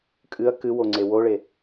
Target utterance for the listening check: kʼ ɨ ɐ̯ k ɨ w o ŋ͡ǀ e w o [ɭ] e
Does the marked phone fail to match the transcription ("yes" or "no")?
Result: no